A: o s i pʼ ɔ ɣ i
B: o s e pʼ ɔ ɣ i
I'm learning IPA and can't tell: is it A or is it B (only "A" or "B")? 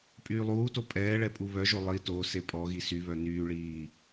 B